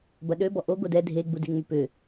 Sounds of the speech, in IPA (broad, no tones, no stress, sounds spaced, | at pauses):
b ɐ ɗ ø b ɔ ʔ o ɡ o d ɛ dʱ e ɡ͡b u d e ŋ͡m ʏ p ʏ